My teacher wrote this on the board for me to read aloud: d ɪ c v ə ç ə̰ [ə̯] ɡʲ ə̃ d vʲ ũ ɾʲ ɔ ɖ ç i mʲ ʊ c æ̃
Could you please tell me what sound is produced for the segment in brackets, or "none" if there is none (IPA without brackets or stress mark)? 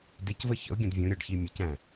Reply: ʊ̯